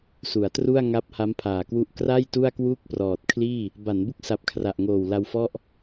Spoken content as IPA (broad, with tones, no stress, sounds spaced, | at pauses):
s u˩˦ a̯ t r u˥˩ a̯ ŋ a˦˥ p̚ h a˦˥ m pʰ aː˨˩ k w u˦˥ ʔ k r a˥˩ j t u˥˩ a̯ k w uː˥˩ k̚ p r ɔː˨˩ t̚ kʰ l iː˥˩ | b a˩˦ n b u˦˥ k̚ s a˨˩ p̚ kʰ r a˨˩ ʔ ŋ oː˨˩ w l a˧ w f ɔ˥˩ ʔ